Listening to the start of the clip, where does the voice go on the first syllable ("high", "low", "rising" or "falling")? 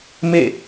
falling